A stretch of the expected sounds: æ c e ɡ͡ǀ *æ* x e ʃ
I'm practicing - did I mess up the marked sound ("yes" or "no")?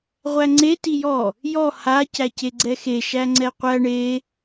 yes